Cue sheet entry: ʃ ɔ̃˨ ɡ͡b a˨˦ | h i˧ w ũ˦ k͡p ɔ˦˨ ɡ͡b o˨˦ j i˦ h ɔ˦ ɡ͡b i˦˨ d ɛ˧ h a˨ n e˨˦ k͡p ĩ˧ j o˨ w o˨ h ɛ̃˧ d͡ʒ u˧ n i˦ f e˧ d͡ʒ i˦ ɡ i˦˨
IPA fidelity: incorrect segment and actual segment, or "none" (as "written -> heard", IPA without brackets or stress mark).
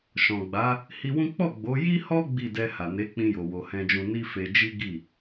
u˧ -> ũ˧